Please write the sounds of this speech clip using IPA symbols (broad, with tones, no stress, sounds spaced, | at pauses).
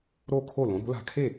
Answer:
ɾ o˥˩ kʰ o˥˩ l õ˩˥ ɾ o̤˩˥ l a̤˧ kʰ e˥˩